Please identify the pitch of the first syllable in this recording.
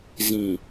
low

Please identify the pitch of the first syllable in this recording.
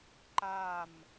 falling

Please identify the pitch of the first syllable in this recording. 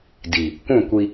low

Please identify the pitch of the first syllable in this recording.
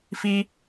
high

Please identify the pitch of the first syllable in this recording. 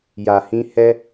low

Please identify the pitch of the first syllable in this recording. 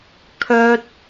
high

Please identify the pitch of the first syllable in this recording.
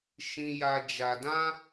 high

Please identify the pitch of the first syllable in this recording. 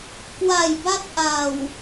low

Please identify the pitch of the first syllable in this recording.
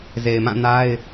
low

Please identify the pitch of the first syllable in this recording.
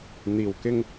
low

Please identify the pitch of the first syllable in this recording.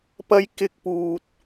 high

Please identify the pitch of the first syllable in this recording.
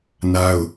high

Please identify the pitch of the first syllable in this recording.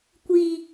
high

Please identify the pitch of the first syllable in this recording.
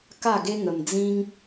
falling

